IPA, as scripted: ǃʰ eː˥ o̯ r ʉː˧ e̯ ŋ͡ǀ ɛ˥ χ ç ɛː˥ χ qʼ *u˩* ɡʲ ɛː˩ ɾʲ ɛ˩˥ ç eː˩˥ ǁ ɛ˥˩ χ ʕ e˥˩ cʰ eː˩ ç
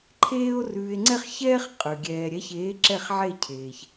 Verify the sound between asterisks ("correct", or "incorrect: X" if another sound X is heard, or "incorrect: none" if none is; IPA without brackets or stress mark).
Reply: incorrect: ʉ˩